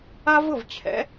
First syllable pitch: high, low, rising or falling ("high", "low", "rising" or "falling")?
high